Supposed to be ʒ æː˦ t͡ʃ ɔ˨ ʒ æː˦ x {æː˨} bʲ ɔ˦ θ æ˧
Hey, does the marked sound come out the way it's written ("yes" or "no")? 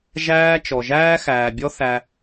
yes